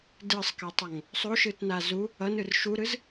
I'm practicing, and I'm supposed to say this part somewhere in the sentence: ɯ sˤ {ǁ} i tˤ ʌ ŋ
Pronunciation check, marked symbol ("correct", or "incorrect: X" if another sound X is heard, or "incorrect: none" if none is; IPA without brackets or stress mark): incorrect: k